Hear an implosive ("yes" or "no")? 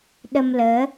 yes